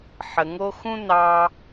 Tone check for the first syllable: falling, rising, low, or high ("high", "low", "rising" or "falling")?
low